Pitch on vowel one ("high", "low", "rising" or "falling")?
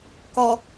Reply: low